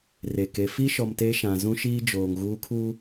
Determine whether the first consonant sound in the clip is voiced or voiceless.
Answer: voiced